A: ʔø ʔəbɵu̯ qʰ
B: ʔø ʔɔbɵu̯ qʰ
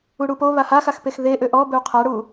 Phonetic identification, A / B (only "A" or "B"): B